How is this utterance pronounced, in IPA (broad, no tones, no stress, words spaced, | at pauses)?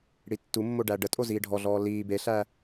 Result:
ɽitːumːo ɖæɖətʼo ziːɖʱɔɮɔː liː beɬæ